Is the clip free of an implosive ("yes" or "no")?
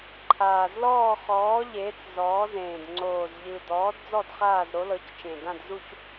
yes